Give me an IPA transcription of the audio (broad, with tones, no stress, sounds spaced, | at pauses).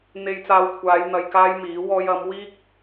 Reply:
n̪ e˧ j t͡s aː˧ w kʷʰ aː˨˧ j n̪ ɐ˧ j k aː˥ j m iː˨˥ w ɔː˥ j ɐ˨˧ m w iː˥ k̚